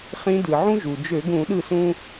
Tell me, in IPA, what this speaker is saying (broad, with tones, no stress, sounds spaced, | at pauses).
χ ĩ˧˥ d ɯ˩ ʕ ũ˥ ʒ u˩ d͡ʒ ø˧˩˧ ɡ ũ˧˩˧ ɗ ɯ˥˩ s ũ˥